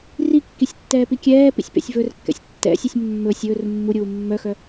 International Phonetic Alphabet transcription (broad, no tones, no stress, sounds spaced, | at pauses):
r i kː i sʲ tː ɛː p i kʲ ɛː p ḭ sʲ p ḛ sʲ v ɵ r kː ɛ̰ sʲ tː ɛ̰ sʲ u sʲ mː ɵ sʲ ɵː r mː u ɾʲ uː mː œ x œ